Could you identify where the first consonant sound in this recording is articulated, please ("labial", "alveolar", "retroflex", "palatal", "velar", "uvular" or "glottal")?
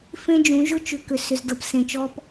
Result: labial